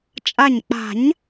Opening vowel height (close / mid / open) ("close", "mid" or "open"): open